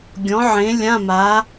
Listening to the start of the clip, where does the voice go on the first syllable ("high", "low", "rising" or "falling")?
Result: rising